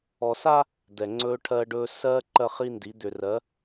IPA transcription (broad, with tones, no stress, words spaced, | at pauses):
ɔ˨sa˦ | d̪ɛ˨ŋ͡ǀɵː˦ʈʰɜː˦ɖɵː˦ sɜː˦ ǃɜ˦χi˦ndi˨˦ d̪ʏ˨rɜ˨˦